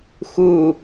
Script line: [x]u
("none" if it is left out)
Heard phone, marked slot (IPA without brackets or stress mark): x